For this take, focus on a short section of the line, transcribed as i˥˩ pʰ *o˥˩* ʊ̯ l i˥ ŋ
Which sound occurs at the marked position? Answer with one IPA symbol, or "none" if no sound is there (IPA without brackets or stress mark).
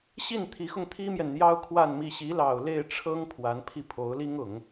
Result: o˧˥